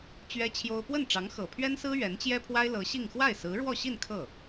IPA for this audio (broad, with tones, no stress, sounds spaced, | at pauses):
t͡ɕ ɥ ɛ˥ t͡ɕʰ j o˥ ʊ̯ p w ə˥˩ n ʈ͡ʂ ɑ˧˥ ŋ x ɤ˨˩ pʰ ɥ ɛ˥ n s ɹ̩˥ ɥ ɛ˧˥ n t͡ɕ j ɛ˥ pʰ w a˥ ɪ̯ l ɤ˧˥ ɕ i˥˧ ŋ x w a˥˩ ɪ̯ s ɹ̩˧˥ ɻ w ɔ˥˧ ɕ i˥˧ n kʰ ɤ˥˩